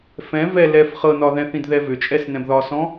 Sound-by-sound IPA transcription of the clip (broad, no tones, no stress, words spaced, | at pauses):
fɛ̃ vɛ lɛf χɤnɒðɛ̃θĩd ðɛvʏt͡ʃʼɛs nɛ̃bðɒsɔ̃